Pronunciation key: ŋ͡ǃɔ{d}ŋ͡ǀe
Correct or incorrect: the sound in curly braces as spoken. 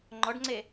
incorrect: ɖ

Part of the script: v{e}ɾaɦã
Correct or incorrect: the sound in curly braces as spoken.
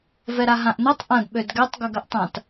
incorrect: ɛ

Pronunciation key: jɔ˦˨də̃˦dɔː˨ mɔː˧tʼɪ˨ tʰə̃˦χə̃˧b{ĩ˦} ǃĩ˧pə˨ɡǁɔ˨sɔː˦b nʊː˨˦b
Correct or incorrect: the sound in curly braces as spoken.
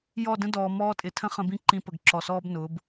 correct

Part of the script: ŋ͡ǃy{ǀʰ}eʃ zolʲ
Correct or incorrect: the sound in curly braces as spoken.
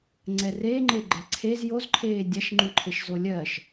incorrect: ǃʰ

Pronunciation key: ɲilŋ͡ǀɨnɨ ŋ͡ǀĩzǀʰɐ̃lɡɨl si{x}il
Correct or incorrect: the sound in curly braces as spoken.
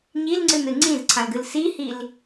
incorrect: h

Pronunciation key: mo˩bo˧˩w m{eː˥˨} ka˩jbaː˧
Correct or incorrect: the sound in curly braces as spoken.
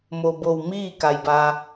incorrect: iː˥˨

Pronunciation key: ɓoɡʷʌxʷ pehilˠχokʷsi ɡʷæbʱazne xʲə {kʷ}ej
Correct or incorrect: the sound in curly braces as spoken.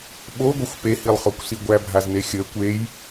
correct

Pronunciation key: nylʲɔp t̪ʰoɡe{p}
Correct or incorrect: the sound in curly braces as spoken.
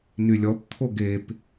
correct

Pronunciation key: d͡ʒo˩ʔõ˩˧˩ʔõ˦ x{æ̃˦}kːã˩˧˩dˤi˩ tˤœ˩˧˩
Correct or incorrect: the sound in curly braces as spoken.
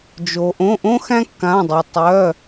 correct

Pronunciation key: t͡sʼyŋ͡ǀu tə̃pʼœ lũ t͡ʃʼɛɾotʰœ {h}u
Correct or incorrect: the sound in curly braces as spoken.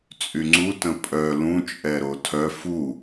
incorrect: f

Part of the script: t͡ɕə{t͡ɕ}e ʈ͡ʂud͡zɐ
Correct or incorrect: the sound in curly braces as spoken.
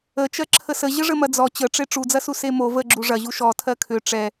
incorrect: ʈ͡ʂ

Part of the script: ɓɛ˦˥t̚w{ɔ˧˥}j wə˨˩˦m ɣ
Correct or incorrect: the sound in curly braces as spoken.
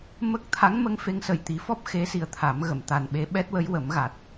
incorrect: ə˧˥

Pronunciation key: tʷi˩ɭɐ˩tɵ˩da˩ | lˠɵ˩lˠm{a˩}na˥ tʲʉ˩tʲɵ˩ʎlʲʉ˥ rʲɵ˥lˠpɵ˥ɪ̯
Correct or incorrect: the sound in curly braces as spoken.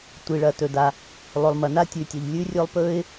incorrect: ɐ˩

